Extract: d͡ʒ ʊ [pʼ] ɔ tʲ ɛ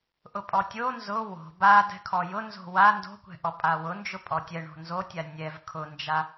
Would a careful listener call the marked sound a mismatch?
no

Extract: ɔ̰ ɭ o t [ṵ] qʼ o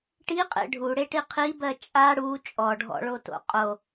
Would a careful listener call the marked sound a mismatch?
yes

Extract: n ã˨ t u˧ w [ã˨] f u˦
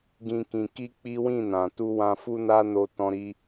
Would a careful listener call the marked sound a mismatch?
yes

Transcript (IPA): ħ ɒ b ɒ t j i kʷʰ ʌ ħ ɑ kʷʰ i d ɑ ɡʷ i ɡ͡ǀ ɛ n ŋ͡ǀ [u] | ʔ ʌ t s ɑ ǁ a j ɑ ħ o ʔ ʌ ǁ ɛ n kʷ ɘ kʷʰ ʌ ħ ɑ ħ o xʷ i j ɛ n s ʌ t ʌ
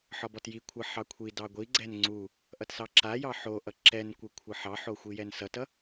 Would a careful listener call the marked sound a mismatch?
no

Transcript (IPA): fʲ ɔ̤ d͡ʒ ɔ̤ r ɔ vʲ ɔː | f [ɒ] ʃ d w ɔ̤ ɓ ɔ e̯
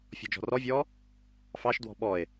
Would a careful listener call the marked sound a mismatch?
yes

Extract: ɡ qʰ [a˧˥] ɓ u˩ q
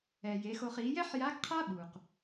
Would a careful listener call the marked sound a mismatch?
yes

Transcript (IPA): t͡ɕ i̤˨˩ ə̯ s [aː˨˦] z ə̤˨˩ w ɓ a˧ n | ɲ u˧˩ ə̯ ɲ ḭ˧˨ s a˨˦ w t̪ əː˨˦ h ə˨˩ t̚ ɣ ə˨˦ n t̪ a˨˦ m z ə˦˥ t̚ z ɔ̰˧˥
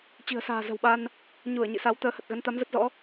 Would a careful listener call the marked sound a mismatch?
yes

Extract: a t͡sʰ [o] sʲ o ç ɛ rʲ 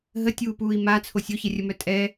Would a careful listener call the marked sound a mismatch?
no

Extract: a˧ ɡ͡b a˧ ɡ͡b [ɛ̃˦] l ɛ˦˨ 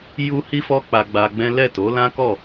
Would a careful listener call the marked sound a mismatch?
no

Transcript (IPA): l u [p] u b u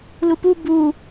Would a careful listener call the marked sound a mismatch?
no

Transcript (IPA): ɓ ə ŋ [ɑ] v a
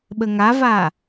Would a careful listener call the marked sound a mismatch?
yes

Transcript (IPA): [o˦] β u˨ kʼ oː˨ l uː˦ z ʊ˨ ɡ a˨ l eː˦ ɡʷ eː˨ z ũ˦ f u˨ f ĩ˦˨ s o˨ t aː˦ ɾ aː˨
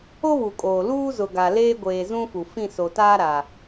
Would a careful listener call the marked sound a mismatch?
no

